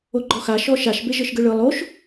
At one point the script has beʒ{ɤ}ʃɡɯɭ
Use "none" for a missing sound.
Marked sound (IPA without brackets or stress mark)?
ɤ